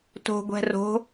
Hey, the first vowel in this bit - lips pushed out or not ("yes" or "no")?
yes